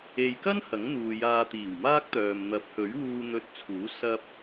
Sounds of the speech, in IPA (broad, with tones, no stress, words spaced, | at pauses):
e˨jkɐ˥n hɐ˨˥ŋn̪uː˨ jaː˧t̪iː˨˩wmaː˥k̚t̪œː˨m n̪ɐ˨˥p̚hɵ˨˥ɥwuː˧ n̪ɵ˧t̚t͡sʰuː˨˥ sɐ˧p̚